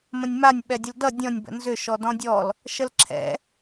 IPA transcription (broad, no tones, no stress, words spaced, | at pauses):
mə̃nʲmanʲ ɓɛdʲəldʌ dʲɔ̃nʲ bə̰nzʏ ʃɔdɔ̃dʲɔl | ʃəlǁʰɛ̰